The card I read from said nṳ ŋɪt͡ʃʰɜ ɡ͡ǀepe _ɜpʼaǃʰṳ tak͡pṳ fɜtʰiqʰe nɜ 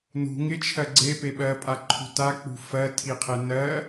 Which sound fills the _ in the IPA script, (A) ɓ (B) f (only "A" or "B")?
A